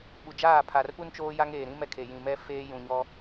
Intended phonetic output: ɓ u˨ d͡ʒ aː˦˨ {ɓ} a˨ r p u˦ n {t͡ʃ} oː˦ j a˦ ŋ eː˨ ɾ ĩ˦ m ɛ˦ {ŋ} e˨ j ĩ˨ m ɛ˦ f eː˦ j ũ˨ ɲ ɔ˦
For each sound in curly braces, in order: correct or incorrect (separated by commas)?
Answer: incorrect, correct, incorrect